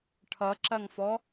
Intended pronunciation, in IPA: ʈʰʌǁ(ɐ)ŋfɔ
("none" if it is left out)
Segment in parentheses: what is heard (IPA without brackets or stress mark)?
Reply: ɐ